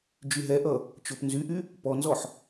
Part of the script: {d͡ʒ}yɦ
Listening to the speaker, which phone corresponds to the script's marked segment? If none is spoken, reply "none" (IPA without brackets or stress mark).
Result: d͡ʒ